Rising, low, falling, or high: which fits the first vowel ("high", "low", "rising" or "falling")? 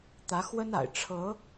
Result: rising